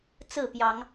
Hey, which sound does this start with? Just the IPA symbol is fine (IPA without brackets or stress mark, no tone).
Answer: t͡s